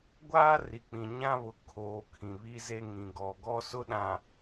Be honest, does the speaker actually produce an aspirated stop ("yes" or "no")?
yes